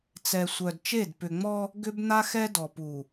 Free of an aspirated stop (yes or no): yes